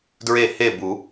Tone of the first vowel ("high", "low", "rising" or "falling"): falling